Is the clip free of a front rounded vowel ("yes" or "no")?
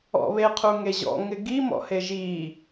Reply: yes